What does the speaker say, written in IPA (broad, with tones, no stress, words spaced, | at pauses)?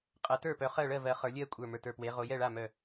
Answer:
qʼɜ˨˦tə˞˥˨pœ˨˦ χɜ˥˨ɭɜ˥˨vɜ˨˦ χə˞˨˦lʲɜ˥˨kʷʼə˞˧˩ mə˞˧˩tə˞˧˩pwe˨˦ ʁo˨˦jɛ˥˨ɭa˥˨ mœ˧˩